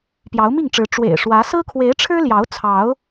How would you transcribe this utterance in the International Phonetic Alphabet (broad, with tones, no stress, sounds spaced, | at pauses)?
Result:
p j ɑ˨˦ ʊ̯ m i˥˨ ŋ ʈ͡ʂ ɻ̩˨˦ ʈ͡ʂ w ḛ˨˩ ɪ̯ ʂ w ä˨˦ s ɹ̩˦ kʰ w e˨˦ ɪ̯ ʈ͡ʂʰ ɻ̩˦ l j ɑ˨˦ ʊ̯ t͡sʰ ɑ˨˦ ʊ̯